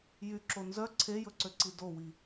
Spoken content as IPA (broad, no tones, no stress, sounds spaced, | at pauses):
j y ǁ o n z œ ǀʰ e j ɵ ǀ ø ǀ i d o w i